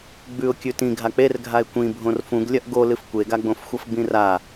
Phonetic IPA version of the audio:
ɡ͡b ʉ ʊ̯ kʲ ʉ t ĩ ɡʱ a k͡p e r ɡʱ a ɪ̯ kʷ ĩ bʱ õ r f ũ ɡ lʲ ɐ ʔ ɡ o l ɨ f kʷ e ɡ a ɡ͡b õ f xʷ ɐ f ɡ͡b ĩ r a

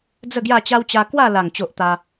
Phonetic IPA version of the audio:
d͡z ə˥˧ ɡ j a˥˧ t͡ɕ a˦ w t͡ɕ a˧ k w a˥˧ l a˨˩ ŋ t͡ɕ o˦ ʔ t̪ a˦

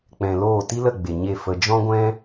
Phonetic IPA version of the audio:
k͡p ɛ̃˨ l oː˦˨ t i˦ l ə˦˨ ɡ͡b e˨ ɲ e˦˨ f ə˧ d͡ʒ ɔ̃˦ ɡʷ ɛ̃˦

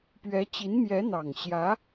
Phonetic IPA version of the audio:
p ɥ ɛ˧˥ t͡ɕ i˧˥ n m j ɛ˧˥ n̪ ɑ˨˩ ŋ ɕ j ä˧˥

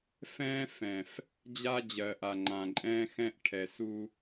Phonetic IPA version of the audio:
f ɛ̃ː˦ f ɛ̃˨ f | d͡ʑ a˦ d͡ʑ ɜː˨ ʔ a˨ ŋ͡ǃ ã˨ ǃʼ ɛ̃ː˦ x ɛ̃˦ ʔ ʈʰ ɛ˨ s u˦

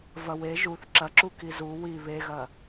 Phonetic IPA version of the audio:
v ɐ w e ʒ u θ ǁ ɐ ǁ u k i z u w i β e ɣ ɐ

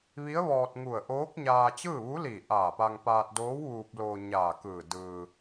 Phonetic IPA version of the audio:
ʋ i˧˥ ə̯ ʋ ɔː˧ t̚ ŋ u˧˩ ə̯ ʔ oː˧˥ k̚ ɲ aː˧ t͡ɕ ɯː˥˨ ʋ u˧˥ l iː˧˩ ʔ aː˧˩ p a˧ ŋ p aː˧ t̚ d oː˧˥ w ʋ uː˧ p̚ l oː˧ ɲ aː˧˩ k ɯː˧˩ d ɯː˧

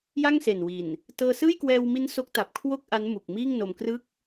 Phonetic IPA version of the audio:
j a˥˩ ŋ s e˨˩ n w i˨˩ n | t ɤː˧ s ɯː˥˩ j k w ɛː˧ w m i˦˥ n s o˦˥ k̚ t a˨˩ p̚ kʰ w o˥˩ k̚ ʔ a˦˥ n m u˨˩ k̚ m iː˥˩ ŋ n o˧ m k r ɯ˥˩ k̚

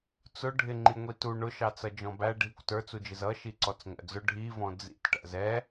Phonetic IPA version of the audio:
t͡s ʊ ɖʱ ɪ ŋ͡ǃ i ŋʷ i t u ɳ ʊ ʃ ɑ t͡s ʌ d͡ʒ ɔ̃ b æ ɖʱ i kʷ t ə˞ t͡s u d͡ʒ ɪ z ʌ ʃ i ǀ ɔ t͡s ŋʷ æ̰ d͡z ʊ ɖʱ i v ɔ̃ d͡z ḭ t ʈ æ̰ z ɛ

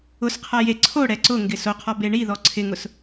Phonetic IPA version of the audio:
ʊ s qʰ a j e ǀʰ o ɽ ɛ ǀ ʊ ŋ ɡ ɪ s o qʰ ɔ b e ɳ i ð ɔ ǀʰ ɪ ŋ ʊ s

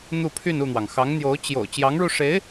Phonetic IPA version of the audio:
n̪ u˥˧ pʰ y˥˧ n u˥˩ n̪ w ɑ˩ ŋ x ɑ˧˥ ŋ n̪ j o˧˥ ʊ̯ t͡ɕ j o̰˨˩ ʊ̯ t͡ɕ j ɑ˧˥ ŋ ɻ u˧ ʂ e˧˥ ɪ̯

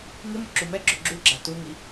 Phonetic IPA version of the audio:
ŋ ɪ m ʊ ǁ u m ɛ ɡ͡ǁ o ɡ͡ǁ u ɡ͡ǁ a t u ŋ i

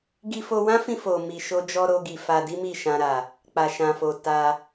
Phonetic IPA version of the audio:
ɡ i˧ f o˧ w ã˦ f ĩ˧ f o˨ m i˨ ʃ o˧ d͡ʒ ɔ˧ ɾ o˧ ɡ i˨ f a˧ d i˦ m i˦˨ ʃ ã˧ ɾ a˨ | k͡p a˨ ʃ ã˨ f o˨ t a˧

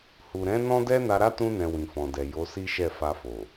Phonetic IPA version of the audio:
h u˨ ɾ ɛ̃˨˦ n ɔ̃˦ d ɛ˦ n a˧ ɾ a˦ t ũ˧ n ɛ̃˨ w ĩ˨ f ɔ̃˨ d ɛ˨ j o˨˦ s i˦ ʃ ɛ˦˨ f a˧ f o˨

